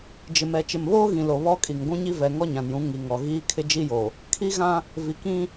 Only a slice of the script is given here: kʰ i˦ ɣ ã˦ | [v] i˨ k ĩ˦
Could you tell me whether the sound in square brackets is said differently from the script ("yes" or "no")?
no